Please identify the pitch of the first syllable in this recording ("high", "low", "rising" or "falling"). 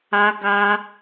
high